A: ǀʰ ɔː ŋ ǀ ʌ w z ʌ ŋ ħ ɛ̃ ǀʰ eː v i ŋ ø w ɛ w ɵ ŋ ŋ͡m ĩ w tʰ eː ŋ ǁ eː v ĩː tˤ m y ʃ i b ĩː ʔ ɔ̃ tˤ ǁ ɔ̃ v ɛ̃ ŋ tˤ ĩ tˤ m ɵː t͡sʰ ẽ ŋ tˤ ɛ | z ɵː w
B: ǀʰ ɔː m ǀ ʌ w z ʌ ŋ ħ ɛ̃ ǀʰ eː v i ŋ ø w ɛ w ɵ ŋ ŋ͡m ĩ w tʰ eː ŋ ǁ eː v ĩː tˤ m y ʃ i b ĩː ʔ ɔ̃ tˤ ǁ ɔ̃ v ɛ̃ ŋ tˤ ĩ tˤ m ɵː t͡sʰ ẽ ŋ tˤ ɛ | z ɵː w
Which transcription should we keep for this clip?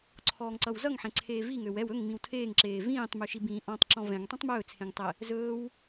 A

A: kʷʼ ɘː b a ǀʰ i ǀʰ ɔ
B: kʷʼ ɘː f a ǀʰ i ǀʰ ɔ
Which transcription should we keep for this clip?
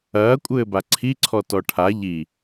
A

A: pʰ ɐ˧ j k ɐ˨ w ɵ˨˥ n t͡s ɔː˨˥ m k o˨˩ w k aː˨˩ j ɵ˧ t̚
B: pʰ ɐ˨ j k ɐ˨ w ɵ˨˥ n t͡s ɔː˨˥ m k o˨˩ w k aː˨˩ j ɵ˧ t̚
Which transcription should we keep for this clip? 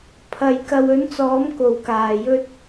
B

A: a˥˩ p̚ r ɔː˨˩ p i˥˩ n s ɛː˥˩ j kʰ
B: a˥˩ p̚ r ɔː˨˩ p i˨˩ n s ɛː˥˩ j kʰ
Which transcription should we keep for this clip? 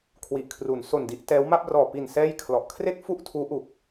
B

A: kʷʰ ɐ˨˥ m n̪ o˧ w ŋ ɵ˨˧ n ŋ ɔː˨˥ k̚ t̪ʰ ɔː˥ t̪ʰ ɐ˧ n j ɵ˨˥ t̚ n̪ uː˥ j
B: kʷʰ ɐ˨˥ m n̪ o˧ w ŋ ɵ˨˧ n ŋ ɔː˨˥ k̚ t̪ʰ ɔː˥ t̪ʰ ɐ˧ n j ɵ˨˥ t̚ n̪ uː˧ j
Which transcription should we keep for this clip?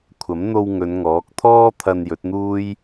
A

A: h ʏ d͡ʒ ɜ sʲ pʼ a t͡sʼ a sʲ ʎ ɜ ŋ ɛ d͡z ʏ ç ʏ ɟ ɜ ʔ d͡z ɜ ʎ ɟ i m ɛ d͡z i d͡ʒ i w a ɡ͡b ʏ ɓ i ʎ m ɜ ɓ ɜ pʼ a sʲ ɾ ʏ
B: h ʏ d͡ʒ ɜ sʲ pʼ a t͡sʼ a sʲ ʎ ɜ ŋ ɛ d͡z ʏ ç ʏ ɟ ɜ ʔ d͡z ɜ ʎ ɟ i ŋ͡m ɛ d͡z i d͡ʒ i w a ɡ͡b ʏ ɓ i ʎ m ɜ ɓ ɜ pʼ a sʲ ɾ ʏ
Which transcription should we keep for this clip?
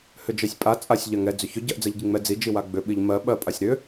B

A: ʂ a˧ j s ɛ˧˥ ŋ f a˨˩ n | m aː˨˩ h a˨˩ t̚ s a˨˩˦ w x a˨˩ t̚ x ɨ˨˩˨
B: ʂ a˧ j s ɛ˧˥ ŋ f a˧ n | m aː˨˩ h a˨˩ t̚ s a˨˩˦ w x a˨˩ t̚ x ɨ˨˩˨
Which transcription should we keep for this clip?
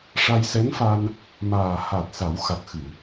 B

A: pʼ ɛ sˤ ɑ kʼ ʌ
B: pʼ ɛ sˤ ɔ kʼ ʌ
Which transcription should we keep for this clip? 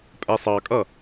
A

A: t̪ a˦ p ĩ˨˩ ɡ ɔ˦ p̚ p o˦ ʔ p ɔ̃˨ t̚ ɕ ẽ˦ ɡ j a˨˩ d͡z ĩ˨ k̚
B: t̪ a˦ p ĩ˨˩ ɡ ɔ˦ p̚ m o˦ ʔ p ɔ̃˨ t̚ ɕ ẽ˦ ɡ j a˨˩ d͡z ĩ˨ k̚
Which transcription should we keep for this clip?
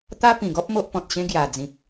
B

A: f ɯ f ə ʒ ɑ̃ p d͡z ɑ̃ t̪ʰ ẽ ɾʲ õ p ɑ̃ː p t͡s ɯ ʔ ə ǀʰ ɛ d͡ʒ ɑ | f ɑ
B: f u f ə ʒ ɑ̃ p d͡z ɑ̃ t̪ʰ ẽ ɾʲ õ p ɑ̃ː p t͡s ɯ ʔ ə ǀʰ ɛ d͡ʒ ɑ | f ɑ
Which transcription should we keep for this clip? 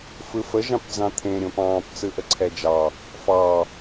A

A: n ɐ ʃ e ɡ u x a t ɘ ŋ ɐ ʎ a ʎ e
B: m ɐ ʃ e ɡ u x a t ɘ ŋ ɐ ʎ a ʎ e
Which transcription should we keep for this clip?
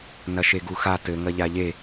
A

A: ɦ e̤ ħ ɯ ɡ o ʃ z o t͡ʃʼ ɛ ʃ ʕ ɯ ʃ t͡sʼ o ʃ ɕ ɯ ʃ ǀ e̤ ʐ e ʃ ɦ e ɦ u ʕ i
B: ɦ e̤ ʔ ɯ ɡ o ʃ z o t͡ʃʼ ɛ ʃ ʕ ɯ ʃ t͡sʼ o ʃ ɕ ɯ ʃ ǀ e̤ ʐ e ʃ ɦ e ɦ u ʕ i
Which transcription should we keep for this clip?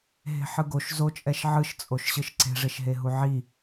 A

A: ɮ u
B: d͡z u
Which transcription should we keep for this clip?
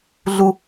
A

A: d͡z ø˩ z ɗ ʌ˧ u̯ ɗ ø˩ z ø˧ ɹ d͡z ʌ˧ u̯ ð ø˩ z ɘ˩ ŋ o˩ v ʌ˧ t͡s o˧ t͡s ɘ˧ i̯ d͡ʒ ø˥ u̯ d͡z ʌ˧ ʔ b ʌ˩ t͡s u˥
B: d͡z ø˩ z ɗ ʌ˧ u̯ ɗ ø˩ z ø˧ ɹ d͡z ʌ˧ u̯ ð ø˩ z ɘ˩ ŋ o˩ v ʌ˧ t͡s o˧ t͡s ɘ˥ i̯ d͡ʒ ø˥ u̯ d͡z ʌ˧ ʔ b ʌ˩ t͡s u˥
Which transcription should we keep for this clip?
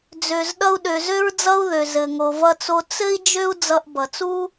B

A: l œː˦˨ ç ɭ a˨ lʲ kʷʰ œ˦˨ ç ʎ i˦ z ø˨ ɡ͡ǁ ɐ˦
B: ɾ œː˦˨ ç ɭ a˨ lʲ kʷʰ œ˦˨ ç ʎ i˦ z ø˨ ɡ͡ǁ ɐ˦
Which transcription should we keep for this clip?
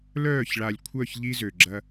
A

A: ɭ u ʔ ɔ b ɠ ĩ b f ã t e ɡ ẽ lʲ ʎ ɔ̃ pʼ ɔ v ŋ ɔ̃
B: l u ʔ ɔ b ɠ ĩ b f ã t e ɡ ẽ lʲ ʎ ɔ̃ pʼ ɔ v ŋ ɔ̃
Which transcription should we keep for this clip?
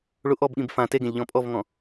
A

